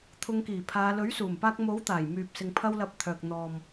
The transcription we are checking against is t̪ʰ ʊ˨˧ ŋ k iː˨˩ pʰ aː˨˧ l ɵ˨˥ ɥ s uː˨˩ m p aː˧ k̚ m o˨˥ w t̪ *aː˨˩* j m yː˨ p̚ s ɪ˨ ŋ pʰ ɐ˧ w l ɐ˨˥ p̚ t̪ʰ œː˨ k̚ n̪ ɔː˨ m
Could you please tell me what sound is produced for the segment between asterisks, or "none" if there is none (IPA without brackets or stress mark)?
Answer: aː˨˩